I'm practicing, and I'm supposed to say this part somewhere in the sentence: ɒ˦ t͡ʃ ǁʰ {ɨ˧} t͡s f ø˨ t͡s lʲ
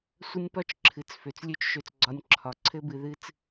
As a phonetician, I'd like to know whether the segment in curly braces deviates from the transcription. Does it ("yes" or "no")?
yes